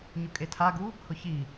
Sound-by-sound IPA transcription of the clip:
ɲʊkʼetʰaɡu | hʊçi

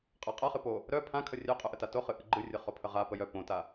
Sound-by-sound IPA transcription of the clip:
qʼaqʼaχɨ po | ɾœ pʰãkʰə rʲœqʼœʔəta toχɨ ʔɨɡ͡ǃɨrʲə χopʰəʁa pəjœ põta

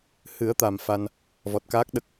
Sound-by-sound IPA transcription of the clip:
hɨ˨˩˦ə̯t̪a˨˩m fa˧n | vɔ˨˩t̚kaː˦˥k̚ ɗə˦˥k̚

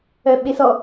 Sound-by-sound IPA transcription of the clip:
œɓesɔ

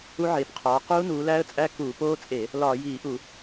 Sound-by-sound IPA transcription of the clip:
u˦˥ʕeː˨˦pqʰɒː˨˦ quː˦˥nuː˨˦læː˦˥ə̯t͡sʼæ˦˥ kuː˧˩˧poː˦˥t͡sʼe˧˩˧ | lɒː˧˩˧jiː˧˩˧ʔu˧˩˧

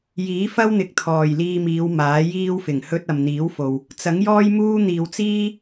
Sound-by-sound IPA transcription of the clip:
jiː˨˥ fɐ˥wn̪ɪ˨˥k̚ t̪ʰɔː˨˩jliː˧miː˨˧w maː˨˥jiː˥wfɪ˨˩ŋ hɵ˧t̚ ɐ˨mn̪iː˨˥wfo˨w | t͡sɐ˨˥ŋjɔː˥jmuː˥ n̪iː˨wt͡siː˥

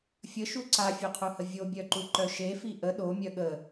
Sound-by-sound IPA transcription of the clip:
fʲəʃu ǀafʲœqʰuhə vʲobʲœǃuǃœ ʃefi ʔə ɗomʲœ ɠə

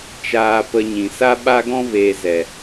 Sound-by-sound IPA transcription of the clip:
t͡ʃaː˧pə˧ ɲĩ˨ sa˦ɓa˦ɡɔ̃˦veː˨ zɛ˨

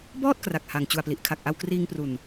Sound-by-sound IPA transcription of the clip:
bɔː˥˩t̚ kra˨˩k̚ha˨˩ŋ t͡ɕu˨˩a̯pli˨˩ʔ kʰa˨˩k̚ʔa˧wkriː˧ŋpru˨˩n

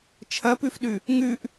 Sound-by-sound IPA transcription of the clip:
t͡ʃʰɐpʉfɗʉ | ŋʉʔ

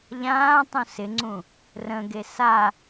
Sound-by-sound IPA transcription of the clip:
ʎãːtˤũ sɪŋ͡ǀũ | rə̃ɡe sa

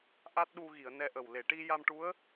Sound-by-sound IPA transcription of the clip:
ʔa˦˥t̚ɗu˧ɣi˨˩˨ə̯ nɛ˧ʔə˨˩w le˨˩˨ʈi˧ja˧mʈu˧˥ə̯

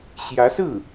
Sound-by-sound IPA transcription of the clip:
ɕjä˧˥sɹ̩˥˩

